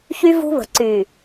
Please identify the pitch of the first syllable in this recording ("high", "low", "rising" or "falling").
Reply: high